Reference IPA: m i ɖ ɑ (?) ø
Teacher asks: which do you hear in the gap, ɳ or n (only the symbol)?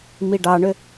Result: ɳ